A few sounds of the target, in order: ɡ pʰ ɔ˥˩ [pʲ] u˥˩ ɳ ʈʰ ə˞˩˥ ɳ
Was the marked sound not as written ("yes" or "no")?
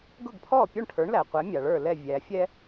no